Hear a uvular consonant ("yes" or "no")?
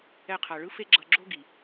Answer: yes